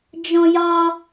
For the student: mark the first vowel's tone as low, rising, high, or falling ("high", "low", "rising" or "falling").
high